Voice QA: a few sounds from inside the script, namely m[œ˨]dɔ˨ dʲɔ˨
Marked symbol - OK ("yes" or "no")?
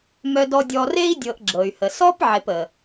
yes